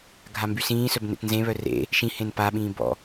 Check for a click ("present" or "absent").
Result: absent